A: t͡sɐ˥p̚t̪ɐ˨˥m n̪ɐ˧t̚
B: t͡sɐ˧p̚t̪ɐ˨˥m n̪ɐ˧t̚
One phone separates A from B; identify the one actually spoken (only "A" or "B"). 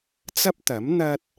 A